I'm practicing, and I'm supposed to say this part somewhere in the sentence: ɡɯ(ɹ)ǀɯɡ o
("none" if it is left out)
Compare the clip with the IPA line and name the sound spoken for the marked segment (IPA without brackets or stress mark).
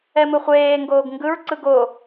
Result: ɹ